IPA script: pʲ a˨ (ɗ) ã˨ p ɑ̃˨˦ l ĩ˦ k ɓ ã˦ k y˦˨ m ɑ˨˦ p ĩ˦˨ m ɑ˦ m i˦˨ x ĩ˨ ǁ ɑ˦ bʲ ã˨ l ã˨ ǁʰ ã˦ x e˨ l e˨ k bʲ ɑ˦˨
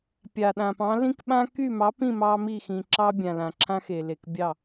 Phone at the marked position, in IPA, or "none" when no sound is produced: ɗ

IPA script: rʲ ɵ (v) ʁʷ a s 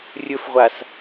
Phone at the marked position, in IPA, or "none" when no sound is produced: f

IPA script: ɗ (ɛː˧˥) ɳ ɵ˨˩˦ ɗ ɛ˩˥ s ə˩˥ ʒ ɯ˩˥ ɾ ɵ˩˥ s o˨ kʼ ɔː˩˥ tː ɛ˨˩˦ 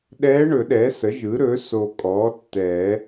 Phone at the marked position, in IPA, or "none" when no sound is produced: ɛː˧˥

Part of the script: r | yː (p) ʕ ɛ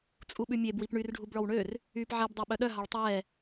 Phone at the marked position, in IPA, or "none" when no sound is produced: p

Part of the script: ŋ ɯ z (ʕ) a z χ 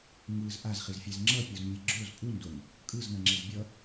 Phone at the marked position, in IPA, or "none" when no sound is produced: ʔ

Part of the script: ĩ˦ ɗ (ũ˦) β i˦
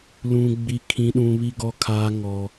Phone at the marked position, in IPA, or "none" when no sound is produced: ũ˦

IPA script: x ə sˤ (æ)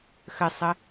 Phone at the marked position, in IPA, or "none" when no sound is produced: ə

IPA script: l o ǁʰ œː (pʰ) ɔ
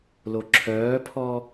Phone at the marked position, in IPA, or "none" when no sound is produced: pʰ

